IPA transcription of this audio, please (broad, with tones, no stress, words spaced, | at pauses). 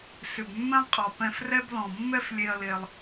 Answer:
sʏ˨bmːɛ̃˦lˠqʼɔ˨ pɛ̃˦frɛ˥b lɔ̃˨mːɛ˦f lʲe˦ɐ̯le˦lˠ